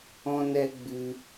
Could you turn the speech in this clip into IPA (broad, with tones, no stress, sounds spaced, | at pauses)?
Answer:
ɔ̃˦ n ɛ˦ ɡ͡b ɨ˧